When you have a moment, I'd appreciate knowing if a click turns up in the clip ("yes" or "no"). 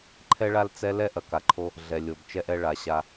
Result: yes